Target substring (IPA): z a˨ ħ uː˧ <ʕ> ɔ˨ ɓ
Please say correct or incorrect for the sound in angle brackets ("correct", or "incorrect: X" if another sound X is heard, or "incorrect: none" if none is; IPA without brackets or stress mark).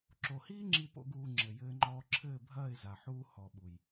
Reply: incorrect: h